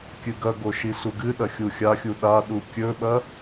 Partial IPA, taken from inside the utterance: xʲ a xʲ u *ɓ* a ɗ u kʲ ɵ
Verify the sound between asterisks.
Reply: incorrect: ɗ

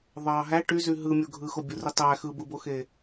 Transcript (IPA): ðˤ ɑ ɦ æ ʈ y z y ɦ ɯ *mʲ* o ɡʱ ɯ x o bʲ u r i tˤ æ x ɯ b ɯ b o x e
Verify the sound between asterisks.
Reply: correct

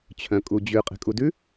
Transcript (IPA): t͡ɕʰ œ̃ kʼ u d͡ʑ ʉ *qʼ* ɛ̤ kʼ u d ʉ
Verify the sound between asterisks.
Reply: correct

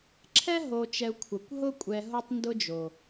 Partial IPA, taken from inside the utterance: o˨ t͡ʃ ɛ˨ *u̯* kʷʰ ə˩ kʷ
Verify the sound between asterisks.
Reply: correct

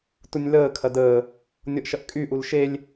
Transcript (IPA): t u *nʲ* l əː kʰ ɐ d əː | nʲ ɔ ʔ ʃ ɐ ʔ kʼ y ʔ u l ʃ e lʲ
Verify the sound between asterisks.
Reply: correct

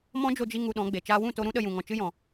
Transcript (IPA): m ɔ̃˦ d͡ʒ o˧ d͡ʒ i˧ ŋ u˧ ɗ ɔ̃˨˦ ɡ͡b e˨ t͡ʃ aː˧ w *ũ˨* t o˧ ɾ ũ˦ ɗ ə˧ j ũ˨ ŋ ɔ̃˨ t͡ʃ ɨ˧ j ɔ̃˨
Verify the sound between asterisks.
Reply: incorrect: ũ˦˨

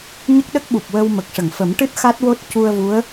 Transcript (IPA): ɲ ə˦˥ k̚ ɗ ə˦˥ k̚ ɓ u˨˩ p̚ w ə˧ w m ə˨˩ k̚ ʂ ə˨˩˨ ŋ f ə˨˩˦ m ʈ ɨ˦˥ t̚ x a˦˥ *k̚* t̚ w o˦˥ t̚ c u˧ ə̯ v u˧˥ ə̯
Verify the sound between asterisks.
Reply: incorrect: none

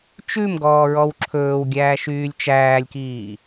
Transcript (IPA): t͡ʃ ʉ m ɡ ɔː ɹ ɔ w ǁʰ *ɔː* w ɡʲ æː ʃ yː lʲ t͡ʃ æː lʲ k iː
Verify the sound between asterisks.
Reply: incorrect: ɵː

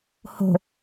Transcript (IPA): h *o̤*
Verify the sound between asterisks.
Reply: correct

